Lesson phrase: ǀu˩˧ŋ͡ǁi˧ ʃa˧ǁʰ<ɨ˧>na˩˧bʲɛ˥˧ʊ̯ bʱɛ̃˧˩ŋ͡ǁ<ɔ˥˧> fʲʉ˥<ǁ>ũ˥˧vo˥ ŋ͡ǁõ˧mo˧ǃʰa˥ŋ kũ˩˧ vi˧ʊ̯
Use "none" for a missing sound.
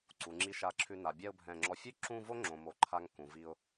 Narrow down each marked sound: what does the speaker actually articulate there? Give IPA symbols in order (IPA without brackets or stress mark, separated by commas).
ʉ˧, ɔ˧, ǁ